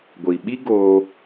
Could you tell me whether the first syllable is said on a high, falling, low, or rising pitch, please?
low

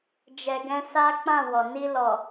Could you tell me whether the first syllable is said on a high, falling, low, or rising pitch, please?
low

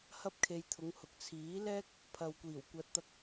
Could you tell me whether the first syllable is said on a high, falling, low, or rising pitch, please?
high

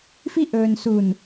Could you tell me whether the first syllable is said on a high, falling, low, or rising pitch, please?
high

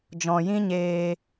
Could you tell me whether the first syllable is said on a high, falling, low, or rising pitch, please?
low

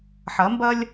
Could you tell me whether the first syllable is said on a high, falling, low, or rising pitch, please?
rising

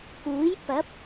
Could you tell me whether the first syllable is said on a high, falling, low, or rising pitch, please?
rising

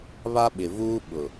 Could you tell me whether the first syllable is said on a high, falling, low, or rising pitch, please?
high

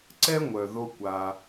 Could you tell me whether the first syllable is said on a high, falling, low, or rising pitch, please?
high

